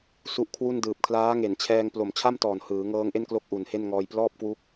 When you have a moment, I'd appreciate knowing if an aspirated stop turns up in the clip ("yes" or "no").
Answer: yes